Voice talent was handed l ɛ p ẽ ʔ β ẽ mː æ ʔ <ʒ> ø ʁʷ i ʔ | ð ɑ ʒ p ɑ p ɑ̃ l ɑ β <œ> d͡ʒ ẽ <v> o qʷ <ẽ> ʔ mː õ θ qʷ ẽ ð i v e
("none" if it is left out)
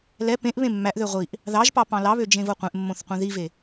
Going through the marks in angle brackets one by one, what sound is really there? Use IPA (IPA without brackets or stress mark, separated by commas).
ð, ø, v, ẽ